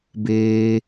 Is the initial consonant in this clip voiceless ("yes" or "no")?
no